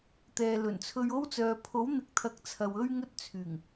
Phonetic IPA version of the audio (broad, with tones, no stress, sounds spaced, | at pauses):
t̪ ɛː˨ l ɵ˨˩ n t͡sʰ ɵ˧ ɥ o˥ w t͡s œː˨ pʰ o˨˥ w n̪ ɪ˨˥ k̚ t̪ʰ ɐ˨˥ k̚ t͡sʰ ɐ˨ w ɵ˥ ɥ ŋ ɵ˥ t̚ t͡sʰ yː˨˩ ŋ